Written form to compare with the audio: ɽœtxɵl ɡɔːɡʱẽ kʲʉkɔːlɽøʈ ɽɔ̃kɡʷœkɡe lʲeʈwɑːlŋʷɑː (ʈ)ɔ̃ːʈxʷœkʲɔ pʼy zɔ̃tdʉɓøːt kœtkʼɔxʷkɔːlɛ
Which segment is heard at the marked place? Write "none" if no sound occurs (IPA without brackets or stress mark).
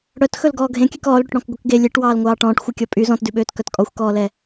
ʈ